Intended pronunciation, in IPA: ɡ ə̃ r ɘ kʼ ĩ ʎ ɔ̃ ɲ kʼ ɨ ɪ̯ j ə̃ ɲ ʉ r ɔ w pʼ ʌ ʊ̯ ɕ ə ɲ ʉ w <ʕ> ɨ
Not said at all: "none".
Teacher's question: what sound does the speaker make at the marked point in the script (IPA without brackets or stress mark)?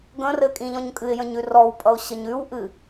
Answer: ʔ